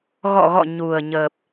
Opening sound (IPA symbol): ɣ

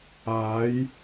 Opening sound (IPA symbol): aː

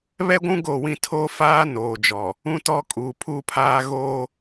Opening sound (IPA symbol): β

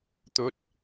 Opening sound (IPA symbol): t̪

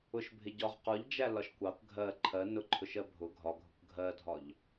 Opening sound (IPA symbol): ʊ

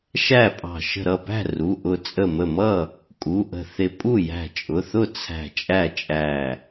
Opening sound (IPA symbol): ʃ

